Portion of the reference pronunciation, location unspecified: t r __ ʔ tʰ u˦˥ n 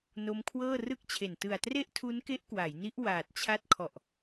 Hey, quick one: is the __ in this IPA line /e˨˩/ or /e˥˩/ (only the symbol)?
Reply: e˥˩